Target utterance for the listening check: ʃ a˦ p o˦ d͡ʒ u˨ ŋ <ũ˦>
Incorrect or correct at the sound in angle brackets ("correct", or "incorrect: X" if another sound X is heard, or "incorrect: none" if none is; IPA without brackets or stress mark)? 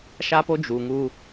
incorrect: u˦